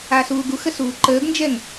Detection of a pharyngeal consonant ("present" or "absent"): absent